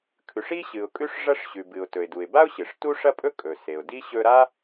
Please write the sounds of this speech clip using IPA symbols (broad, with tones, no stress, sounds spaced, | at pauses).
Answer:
kʰ ʉ˩ ʂ i˥ ɕ ɨ˩ ʊ̯ kʼ ʉ˥ ʂ ʐ ɐ˥ ʂ ɕ ʉ˩ b ɨ˩ ʊ̯ t ɵ˩ ɪ̯ d u˩ ɪ̯ b a˥ ʊ̯ ɕ ɨ˩ ʂ t u˥ ʂ ɐ˥ pʼ ɵ˥ kʼ ɵ˩ s e˩ ʊ̯ d i˥ ɕ ɵ˥ ɾ a˥